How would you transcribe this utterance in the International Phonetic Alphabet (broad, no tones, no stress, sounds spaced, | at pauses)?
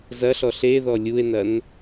z ɐ ɬ ɔ ɬ e ð ɔ lʲ u e̯ n ɐ n